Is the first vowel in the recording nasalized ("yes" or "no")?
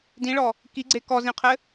yes